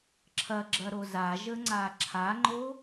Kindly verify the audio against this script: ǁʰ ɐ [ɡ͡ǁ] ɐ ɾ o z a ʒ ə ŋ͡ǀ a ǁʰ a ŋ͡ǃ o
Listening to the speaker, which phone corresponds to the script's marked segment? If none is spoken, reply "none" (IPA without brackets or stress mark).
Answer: ɡ͡ǁ